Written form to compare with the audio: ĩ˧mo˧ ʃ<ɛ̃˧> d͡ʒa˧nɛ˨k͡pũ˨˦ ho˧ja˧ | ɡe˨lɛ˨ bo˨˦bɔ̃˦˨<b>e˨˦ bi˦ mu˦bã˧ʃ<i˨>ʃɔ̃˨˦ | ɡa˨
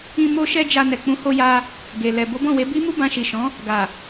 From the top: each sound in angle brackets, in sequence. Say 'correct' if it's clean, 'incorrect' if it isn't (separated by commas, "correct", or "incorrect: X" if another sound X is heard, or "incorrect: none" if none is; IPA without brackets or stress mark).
incorrect: ɛ˧, incorrect: w, correct